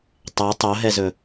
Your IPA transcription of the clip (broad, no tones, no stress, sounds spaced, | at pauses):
tˤ ɛ tˤ o ɦ ɛ z ɵ